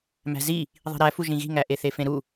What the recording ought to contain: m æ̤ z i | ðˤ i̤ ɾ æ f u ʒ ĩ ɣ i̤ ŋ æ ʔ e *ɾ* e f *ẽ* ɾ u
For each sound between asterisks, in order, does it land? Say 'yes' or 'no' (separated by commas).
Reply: no, yes